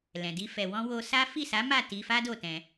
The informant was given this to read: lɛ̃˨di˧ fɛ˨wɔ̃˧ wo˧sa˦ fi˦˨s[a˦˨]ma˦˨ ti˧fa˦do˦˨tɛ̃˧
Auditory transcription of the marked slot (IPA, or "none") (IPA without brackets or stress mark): a˨˦